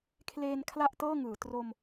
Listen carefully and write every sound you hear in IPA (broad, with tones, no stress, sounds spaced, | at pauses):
kʰ l eː˧ n kʰ l a˥˩ ʔ t ɤː˥˩ ŋ ɯː˩˦ t r o˧ m